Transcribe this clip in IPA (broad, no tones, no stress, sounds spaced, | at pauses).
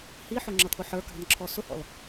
h i ħ ʊ ŋ͡ǁ ʌ t̪ʰ ʊ ħ ə˞ k ɑ̤ n ǁʰ ɔ s ʊ h ɔ̰ l